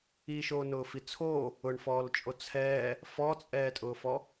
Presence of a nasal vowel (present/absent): absent